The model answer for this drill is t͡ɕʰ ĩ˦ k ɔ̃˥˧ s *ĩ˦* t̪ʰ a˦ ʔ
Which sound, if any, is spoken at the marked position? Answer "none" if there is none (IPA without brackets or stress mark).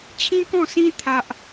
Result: ĩ˦